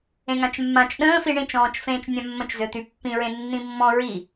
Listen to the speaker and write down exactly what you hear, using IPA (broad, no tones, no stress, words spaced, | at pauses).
ẽŋãt͡ʃmːãt͡ʃ ɗə̃ːfi ɳĩt͡ʃɔ̃ːt͡ʃfẽːt͡ʃ nʲãmːə̃t͡ʃzø t̪ypːĩɹẽ nːĩmːɔ̃ ɹi